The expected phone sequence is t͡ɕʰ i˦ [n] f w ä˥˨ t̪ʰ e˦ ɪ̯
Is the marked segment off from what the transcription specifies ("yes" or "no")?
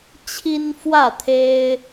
no